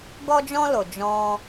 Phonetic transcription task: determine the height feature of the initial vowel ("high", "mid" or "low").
mid